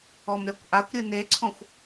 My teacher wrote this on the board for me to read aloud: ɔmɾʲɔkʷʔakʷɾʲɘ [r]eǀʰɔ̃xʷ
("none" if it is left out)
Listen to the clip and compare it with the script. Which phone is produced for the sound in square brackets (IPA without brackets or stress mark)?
n